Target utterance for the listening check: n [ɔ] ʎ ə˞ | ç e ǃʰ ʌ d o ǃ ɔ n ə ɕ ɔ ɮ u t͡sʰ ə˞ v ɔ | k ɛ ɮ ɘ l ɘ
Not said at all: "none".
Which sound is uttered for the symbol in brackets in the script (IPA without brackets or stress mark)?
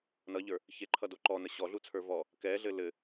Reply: ʌ